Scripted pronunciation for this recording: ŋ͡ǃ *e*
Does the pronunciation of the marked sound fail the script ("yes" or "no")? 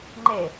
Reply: no